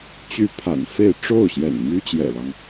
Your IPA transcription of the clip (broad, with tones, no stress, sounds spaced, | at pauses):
t͡ɕ y˧˥ pʰ a̰˨˩ n f e˥˧ ɪ̯ ʈ͡ʂ o˥˩ ʊ̯ ɕ j ɛ̰˨˩ n m y˥ t͡ɕ j ɛ̰˨˩ l ɑ˦ ŋ